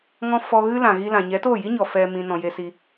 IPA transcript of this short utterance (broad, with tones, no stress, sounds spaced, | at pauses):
ŋ ɔ̃˧ f ɔ˧ ɣ ɨ˦ l ã˨ ɣ i˧ l ã˨ ɲ ɛ˨˦ t o˦˨ j i˦ ɲ ɔ˨ f ɛ˨ m ĩ˨ n ɔ̃˨ j e˧ s i˧